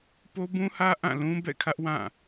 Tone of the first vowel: high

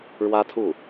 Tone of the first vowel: high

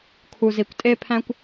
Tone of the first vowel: low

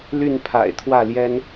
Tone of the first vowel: falling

